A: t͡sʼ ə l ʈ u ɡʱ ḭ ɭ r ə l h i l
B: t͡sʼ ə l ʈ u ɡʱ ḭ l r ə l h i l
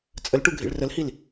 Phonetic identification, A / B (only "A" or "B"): A